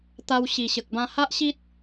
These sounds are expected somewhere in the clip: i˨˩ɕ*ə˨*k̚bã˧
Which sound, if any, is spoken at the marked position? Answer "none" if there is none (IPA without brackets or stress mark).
ə˨